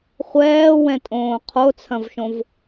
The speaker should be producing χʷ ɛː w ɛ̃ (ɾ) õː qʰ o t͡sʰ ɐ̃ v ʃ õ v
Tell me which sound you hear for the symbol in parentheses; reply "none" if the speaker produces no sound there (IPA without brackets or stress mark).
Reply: tʼ